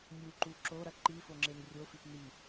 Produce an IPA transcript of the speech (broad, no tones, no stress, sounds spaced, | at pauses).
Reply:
nʲ u ǃ u ǁ o ɾ ɐ ǃ i f o ŋ͡ǁ e n rʲ o f i p n i